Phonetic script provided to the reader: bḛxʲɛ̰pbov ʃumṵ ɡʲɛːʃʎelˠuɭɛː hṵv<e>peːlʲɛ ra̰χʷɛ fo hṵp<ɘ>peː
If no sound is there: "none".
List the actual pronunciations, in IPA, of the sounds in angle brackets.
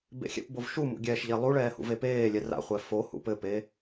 e, ɘ

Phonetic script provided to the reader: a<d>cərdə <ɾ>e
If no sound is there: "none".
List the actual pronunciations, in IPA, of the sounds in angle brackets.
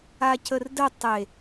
none, tˤ

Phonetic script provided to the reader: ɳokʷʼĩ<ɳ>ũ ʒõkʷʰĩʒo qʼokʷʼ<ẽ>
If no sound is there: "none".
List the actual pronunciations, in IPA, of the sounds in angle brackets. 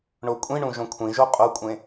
ɳ, ẽ

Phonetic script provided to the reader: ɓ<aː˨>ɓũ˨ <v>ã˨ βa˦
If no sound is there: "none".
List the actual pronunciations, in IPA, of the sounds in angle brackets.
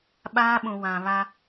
aː˦, w

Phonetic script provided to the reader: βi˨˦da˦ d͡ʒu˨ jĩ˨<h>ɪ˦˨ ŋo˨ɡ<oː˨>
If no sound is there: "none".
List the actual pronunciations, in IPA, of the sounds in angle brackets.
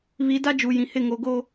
h, oː˦

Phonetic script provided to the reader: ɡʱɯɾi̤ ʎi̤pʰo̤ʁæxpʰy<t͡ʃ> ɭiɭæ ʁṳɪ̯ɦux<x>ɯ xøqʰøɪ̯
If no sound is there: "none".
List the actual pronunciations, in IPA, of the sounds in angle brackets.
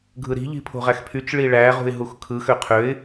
t͡ʃ, kʰ

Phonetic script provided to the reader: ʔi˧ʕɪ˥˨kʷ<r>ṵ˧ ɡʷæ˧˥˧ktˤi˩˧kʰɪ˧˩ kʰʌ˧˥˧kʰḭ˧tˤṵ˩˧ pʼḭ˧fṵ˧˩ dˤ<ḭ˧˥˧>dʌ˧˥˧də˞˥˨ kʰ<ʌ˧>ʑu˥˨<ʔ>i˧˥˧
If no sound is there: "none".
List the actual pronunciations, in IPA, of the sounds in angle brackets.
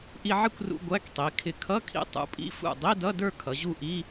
r, i˧˥˧, ʌ˩˧, ʔ

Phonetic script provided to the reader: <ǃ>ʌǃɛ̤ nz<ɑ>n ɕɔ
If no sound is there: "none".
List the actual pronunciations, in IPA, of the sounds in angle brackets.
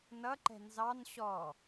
n, ɑ

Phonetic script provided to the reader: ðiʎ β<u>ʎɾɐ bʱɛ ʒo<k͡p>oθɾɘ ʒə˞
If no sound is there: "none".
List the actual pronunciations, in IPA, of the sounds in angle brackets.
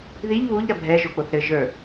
u, k͡p

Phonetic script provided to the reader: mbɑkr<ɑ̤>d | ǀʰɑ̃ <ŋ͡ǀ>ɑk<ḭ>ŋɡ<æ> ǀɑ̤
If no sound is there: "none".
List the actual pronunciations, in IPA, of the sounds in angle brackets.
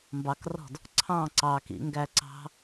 ɔ̤, ǀ, ḭ, æ

